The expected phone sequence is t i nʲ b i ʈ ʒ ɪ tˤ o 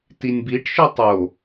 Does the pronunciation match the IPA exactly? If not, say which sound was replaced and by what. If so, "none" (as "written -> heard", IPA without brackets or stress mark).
ʒ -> ʃ